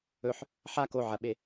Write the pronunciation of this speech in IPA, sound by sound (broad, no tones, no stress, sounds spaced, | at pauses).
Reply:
ɵ ħ | ħ a k o ʕ ɐ ɓ e